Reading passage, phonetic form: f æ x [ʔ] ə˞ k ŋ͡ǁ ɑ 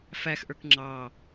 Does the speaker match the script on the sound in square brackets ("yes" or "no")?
yes